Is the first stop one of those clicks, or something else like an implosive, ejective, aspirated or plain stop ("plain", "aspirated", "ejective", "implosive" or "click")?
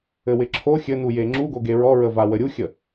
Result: click